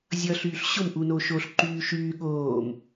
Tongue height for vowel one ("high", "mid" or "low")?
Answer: mid